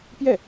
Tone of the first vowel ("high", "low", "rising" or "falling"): falling